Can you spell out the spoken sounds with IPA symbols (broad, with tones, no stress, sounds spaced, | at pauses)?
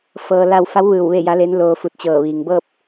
f ɤː˧ l a˥˨ w f a˧˥ w ʋ ɯː˧˩ w ʋ e˥˨ j a˧˥ l e˧˥ n l oː˧ f u˧˩ t̚ t͡ɕ ɤː˧˩ ʋ iː˩ ŋ b ɤː˥˨ p̚